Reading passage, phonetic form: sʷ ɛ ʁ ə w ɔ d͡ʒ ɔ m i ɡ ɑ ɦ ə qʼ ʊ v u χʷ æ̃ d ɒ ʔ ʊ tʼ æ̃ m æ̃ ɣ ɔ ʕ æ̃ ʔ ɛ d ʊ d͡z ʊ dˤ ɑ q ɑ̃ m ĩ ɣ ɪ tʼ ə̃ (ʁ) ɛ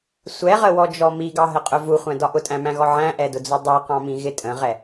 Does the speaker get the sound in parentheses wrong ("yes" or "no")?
no